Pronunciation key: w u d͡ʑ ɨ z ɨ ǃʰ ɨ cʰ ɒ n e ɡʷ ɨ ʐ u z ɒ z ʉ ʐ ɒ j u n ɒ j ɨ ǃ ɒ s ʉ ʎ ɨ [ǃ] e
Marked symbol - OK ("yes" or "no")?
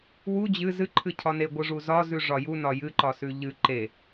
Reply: yes